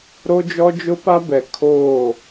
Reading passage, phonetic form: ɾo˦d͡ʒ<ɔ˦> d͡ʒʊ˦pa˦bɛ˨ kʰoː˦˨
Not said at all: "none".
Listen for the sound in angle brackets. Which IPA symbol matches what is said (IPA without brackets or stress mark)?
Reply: ɔ˦